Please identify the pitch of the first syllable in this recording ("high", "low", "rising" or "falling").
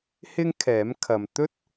high